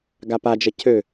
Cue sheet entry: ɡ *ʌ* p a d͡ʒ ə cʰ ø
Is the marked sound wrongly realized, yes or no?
yes